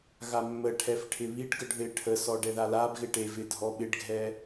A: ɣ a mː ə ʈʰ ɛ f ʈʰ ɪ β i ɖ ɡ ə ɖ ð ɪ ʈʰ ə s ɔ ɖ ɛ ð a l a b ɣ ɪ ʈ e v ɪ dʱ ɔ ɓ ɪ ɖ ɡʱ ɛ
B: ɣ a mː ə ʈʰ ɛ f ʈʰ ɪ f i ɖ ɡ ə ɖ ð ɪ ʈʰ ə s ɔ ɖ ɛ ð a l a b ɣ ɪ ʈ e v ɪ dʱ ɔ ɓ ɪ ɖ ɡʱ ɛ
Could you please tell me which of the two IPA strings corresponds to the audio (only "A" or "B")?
A